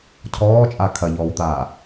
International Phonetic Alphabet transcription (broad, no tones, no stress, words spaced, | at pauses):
cʰɔːt͡ʃʼa kʰɐʎɔːwt̪aː